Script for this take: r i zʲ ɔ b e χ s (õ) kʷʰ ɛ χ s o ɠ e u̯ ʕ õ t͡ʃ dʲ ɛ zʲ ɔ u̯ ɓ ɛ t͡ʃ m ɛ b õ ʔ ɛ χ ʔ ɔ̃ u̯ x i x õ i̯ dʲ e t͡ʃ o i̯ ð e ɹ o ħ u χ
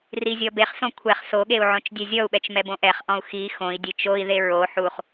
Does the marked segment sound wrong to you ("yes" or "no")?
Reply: no